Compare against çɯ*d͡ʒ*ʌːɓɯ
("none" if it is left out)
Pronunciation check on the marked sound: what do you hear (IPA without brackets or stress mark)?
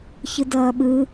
d